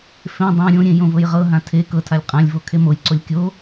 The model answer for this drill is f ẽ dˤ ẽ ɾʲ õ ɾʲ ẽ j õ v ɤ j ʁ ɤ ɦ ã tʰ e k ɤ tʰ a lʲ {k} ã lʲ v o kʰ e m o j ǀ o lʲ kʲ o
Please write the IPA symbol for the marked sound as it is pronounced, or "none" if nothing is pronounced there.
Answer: qʼ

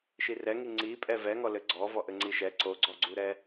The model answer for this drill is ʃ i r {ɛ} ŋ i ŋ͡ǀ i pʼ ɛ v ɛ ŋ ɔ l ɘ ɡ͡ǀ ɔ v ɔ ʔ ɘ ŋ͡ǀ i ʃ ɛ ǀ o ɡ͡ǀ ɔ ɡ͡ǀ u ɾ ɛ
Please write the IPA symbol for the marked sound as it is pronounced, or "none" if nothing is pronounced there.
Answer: ɛ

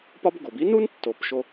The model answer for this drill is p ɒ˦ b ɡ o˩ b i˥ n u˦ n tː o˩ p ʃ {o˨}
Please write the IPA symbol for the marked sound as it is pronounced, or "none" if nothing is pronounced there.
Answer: o˨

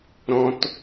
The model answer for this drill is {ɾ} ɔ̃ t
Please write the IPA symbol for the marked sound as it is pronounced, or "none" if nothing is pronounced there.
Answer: ɾ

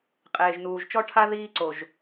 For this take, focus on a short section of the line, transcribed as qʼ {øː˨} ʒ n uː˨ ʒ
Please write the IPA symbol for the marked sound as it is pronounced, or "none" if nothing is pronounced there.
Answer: eː˨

